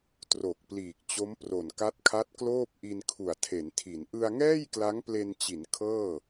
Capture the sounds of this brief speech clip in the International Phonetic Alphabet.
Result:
t r o˨˩ k̚ p l iː˨˩ k̚ t͡ɕ o˦˥ m p r o˨˩ n k a˦˥ t̚ kʰ a˦˥ t̚ k l oː˥˩ p̚ ʔ i˧ n kʰ u˨˩ a̯ tʰ e˩˦ n tʰ i˩˦ n ʔ ɯ˧ a̯ ŋ ɛː˥˩ j k l a˦˥ ŋ p l e˧ n t͡ɕ i˩˦ n kʰ ɤː˥˩

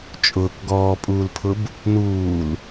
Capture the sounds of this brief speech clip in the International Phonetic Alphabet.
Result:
t͡ʃʼ ʊː k ɡ ɔː pʼ uː l pʰ ʊ b | n uː l

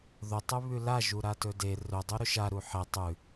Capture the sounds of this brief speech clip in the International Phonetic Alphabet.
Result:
ð ɵ tˤ ʉ β ʉ l a ʒ u ɾ a t ɵ d e r ɵ dˤ u ɾ ɵ ʃ a ɾ u ħ e tˤ ʉ

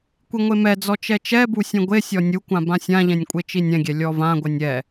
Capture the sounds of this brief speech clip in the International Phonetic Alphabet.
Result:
kʷ i ŋʷ e m ɛ d͡z ɔ t͡ʃ ɛ t͡ʃ ɛ b u sʲ ɛ̃ ɡʷ e sʲ ɔ nʲ u kʷ ã b ã sʲ ã ʎ ɛ̃ nʲ kʷʼ e t͡ʃ i nʲ ɛ̃ ɡʲ ɛ lʲ ɔ v ã ɡʷ ɛ nʲ ɛ

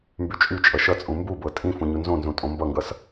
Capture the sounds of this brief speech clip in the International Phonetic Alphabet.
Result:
m b y t͡ʃʼ y t͡ʃʼ ʌ ʃ ʌ t͡sʼ ũ m b u b ɤ tʼ ĩ f ũ ɲ u n z õ n z ũ tʼ õ m b ʌ ŋ ɡ ʌ s

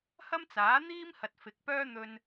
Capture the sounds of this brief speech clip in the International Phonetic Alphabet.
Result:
h ɐ˥ m t͡s aː˨˥ n̪ iː˥ m h ɐ˨ t̚ f ɪ˨˥ k̚ p œː˥ n̪ ɵ˧ n

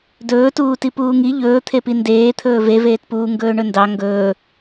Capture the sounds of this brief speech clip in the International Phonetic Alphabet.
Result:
d ɵː t uː t i p uː ŋ i ʎ ɵː t̪ʰ e p i n d eː t̪ʰ ɵː v e v eː t p uː ŋ ɡ ɵː ɳ ɵ n d ɑ ŋ ɡ ɵː

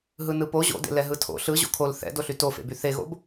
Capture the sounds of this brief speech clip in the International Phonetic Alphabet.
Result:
ɦ ɯ n ɯ p o ʑ o̰ d ḛ l ɛ ɦ ɯ tʰ o̰ ɬ ɯ ʑ o̰ kʰ o l θ ɛ̰ d o ɬ y t o f ḛ b y θ e ɣ o̰ b

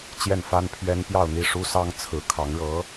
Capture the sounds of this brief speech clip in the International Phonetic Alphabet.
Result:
t͡ɕ j ɛ˥˩ n f a˥ n pʰ ɥ ɛ˥ n p j ɑ˥˧ ʊ̯ n̪ i˥˩ ʂ u˥ s ɑ˥ ŋ t͡sʰ ɹ̩˧˥ kʰ ɑ˧˥ ŋ ɻ ɤ˧˥

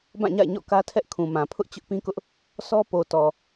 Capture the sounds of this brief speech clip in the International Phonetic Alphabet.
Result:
b ã˦˨ ɲ a̰˦˨ ɪ̯ ɲ ɔ̰˦˨ k ä˦ tʰ ɛ˦ ʔ kʰ ũ˨ m ã˨ pʰ ʊ˦ ʔ t͡ɕ ʊ˦ ʔ p ĩ˦ k ʊ˦ ʔ | sʰ ɔ˦ p o˨ t ɔ˨

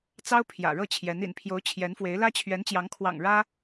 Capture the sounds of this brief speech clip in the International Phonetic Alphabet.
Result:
t͡s ɑ˥ ʊ̯ pʰ j ä̰˨˩ ɻ ɤ˥˩ t͡ɕʰ j ɛ˧˥ n ḭ˨˩ n pʰ j o˧˥ ʊ̯ t͡ɕʰ j ɛ˧˥ n f w e˧˥ ɪ̯ l ä˥ t͡ɕʰ ɥ ɛ˧˥ n t͡ɕ j ɑ˧˥ ŋ kʰ w ɑ̰˨˩ ŋ ɻ ä˥

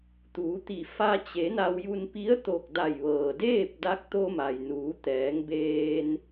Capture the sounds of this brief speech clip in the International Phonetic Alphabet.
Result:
t̪ uː˩˧ t̪ i˧˩ f a˧ t͡ɕ e˩˧ n a˧ w j u˧ n p i˧˥ ə̯ t̪ o˧˩ k̚ d a˧˩ j ʋ ɤː˩ d eː˥˨ p̚ d a˧˥ k̚ t̪ o˧ m a˩ j n uː˩˧ t̪ ɛː˩˧ ŋ b eː˧ n

